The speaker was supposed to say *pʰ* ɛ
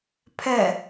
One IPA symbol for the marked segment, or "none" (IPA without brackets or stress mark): pʰ